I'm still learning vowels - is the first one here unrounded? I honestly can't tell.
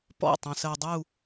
no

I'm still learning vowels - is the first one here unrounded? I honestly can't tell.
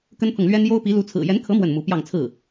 yes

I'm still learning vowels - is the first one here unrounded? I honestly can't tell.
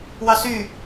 yes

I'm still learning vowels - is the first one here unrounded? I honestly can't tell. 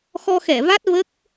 no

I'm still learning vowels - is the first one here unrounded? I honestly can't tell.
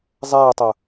yes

